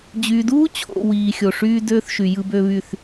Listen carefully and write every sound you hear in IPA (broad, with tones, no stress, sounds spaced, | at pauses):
d͡ʑ y˨ d uː˦ t͡ɕʰ o̰˨ w iː˨ xʲ o˨ ʂ yː˦ d øː˦ θ ʃ y˨ j ɯ˦ b ø˦ β y˦˨ θ